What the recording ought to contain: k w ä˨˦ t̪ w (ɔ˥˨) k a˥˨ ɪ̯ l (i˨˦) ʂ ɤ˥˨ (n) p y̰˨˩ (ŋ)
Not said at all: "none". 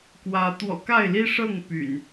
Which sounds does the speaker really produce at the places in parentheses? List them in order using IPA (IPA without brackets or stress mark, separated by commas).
ɔ̰˨˩, i˦, ŋ, n